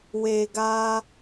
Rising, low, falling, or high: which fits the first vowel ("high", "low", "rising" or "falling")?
low